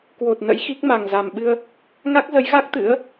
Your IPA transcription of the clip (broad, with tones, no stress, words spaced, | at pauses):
kwo˨˩t̚ nə̰˧˥jxi˦˥k̚ ma˨˩ŋza˨˩mɓɨ˧ə̯ | ŋa˦˥k̚zə˨˦jɣa˦˥k̚ t̪ɨ̰˧˥ə̯